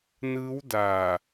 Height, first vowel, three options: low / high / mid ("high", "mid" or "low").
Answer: high